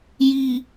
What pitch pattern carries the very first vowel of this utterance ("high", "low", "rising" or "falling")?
low